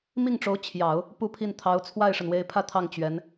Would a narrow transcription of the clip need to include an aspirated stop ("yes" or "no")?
yes